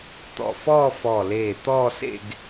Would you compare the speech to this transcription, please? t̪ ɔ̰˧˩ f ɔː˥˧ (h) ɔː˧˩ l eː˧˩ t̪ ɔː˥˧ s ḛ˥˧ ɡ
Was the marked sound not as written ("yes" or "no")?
yes